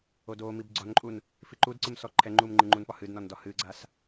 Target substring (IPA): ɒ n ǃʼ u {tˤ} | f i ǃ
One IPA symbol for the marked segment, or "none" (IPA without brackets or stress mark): n